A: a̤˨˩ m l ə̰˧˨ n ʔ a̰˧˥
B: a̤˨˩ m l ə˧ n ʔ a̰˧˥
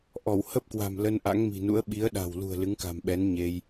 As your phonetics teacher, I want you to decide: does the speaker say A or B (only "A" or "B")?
B